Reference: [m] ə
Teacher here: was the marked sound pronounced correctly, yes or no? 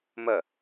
yes